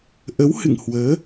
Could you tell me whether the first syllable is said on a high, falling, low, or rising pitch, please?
rising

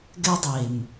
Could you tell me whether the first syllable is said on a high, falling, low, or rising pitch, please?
high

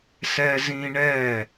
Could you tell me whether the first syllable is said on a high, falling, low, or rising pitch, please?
high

